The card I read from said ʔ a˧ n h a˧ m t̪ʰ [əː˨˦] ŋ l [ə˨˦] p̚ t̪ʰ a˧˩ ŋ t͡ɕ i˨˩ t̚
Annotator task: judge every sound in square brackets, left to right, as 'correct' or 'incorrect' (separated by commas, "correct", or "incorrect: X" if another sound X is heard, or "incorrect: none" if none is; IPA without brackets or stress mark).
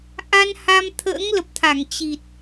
incorrect: ə̰ː˧˥, incorrect: ə˨˩